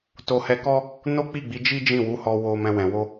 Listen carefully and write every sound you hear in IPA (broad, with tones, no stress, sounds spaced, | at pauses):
t o˧ h ɛ˧ k ɔ˦ | n o˦ k͡p i˦˨ ɡ͡b i˨˦ d͡ʒ i˦ d͡ʒ ĩ˦˨ w u˨˦ h ɔ˧ w o˧ m ɛ̃˧ w ɛ̃˨ w o˧